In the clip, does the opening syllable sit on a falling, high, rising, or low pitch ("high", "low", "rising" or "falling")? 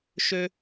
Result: high